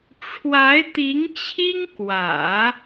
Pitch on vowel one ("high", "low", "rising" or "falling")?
rising